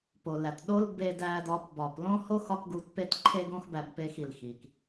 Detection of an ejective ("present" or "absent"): absent